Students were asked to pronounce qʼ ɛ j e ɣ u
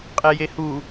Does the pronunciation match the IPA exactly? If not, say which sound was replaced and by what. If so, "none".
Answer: ɣ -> h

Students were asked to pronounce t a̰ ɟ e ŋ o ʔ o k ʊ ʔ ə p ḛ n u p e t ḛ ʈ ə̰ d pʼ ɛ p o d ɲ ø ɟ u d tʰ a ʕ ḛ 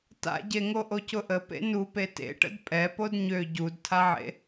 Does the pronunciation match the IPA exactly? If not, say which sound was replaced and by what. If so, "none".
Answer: k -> c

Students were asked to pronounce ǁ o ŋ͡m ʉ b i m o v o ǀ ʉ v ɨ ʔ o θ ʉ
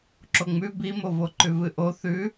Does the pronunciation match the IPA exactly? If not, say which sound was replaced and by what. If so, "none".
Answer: ǀ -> ǃ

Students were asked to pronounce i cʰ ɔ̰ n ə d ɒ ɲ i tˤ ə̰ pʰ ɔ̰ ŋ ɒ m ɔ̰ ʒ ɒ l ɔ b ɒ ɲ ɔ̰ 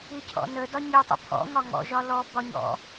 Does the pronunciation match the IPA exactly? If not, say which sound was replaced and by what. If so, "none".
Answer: m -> ŋ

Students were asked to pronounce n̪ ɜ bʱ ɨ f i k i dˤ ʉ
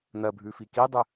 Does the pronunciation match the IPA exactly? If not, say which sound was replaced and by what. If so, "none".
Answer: ɨ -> ʉ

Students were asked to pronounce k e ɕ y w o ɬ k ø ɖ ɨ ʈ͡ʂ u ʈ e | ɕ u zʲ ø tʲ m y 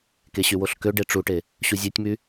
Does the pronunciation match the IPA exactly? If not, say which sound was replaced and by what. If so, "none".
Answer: ɨ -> e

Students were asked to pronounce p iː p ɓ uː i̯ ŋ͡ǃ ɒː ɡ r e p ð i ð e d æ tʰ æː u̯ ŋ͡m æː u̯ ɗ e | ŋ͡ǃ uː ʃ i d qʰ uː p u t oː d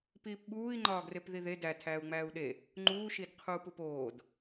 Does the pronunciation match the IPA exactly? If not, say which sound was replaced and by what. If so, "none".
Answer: t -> p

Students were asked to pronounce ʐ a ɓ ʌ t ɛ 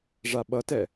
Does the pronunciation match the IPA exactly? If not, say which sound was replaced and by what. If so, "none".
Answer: none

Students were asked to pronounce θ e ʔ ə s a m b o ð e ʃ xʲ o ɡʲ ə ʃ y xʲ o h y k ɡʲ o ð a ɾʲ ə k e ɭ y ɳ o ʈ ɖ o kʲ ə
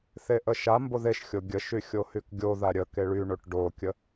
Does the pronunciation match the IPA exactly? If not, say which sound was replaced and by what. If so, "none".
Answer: s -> ʃ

